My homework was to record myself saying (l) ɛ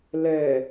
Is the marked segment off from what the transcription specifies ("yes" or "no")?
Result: no